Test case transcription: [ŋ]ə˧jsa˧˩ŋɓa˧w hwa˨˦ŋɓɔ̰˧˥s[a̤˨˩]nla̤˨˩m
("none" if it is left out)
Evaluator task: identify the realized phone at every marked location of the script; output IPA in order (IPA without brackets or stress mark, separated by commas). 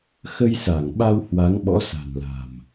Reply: x, a̤˨˩